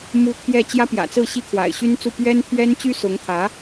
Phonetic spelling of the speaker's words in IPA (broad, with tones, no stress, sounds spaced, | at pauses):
m u˥ t̪ʰ j ɛ˥˩ t͡ɕ j ä˥ p j ä̰˨˩ t͡s ɹ̩˥˩ ɕ i˥ kʰ w a̰˨˩ ɪ̯ ɕ y˥ n t͡s u˥˩ p ɥ ɛ˥ n t̪ʰ ɥ ɛ˥ n t͡ɕ y˥ s ʊ˧˥ ŋ t̪ʰ ä˧˥